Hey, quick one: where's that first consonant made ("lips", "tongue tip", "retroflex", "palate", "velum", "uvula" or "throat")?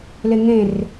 tongue tip